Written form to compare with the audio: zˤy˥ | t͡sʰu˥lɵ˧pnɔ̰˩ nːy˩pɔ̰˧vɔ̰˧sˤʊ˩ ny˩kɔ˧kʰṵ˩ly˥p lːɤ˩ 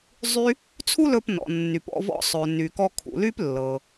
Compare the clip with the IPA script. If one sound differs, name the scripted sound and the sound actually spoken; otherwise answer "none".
ʊ˩ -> ɵ˩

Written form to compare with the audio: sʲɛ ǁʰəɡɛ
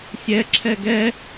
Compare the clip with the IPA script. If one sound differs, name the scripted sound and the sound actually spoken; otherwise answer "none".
ə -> ɛ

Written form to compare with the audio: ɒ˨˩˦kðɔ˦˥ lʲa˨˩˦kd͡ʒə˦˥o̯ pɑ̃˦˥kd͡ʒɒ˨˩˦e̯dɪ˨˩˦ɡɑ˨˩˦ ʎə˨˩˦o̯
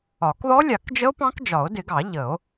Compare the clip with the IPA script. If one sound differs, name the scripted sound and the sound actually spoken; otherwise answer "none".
e̯ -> o̯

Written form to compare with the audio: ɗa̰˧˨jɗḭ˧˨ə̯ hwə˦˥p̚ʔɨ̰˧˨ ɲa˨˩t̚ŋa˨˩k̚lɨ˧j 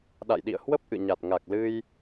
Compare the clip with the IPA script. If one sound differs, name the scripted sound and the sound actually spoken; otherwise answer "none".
none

